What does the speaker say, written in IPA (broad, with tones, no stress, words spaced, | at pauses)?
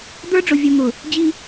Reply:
d̪ə˞˦ɖ͡ʐʊ˨vʲu˨n̪ʊ˨ | d͡ʑi˦